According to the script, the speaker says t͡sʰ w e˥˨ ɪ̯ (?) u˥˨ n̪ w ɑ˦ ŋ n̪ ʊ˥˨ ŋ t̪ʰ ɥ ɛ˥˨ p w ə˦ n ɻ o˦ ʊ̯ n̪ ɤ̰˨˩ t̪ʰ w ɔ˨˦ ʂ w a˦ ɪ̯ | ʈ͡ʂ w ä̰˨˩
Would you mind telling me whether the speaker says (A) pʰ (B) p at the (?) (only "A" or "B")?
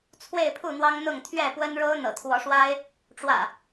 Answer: A